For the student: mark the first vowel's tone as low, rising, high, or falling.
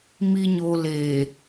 low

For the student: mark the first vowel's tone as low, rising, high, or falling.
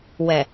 low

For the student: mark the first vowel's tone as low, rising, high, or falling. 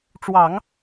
low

